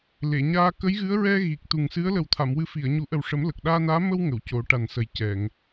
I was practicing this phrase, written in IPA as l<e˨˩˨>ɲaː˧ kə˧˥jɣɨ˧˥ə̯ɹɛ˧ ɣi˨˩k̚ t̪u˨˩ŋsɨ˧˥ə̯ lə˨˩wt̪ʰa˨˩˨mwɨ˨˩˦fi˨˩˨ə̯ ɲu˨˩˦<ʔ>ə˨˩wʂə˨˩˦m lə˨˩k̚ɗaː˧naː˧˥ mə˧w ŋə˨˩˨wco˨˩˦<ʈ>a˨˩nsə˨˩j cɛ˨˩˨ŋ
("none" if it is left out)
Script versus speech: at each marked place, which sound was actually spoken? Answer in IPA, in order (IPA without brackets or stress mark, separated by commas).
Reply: e˨˩˨, ʔ, ʈ